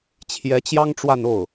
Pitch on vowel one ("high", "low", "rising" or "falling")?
rising